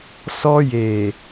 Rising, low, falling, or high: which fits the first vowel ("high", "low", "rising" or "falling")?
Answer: high